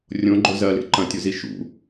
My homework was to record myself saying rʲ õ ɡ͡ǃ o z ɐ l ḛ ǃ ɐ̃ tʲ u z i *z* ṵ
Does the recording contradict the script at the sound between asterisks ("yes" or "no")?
yes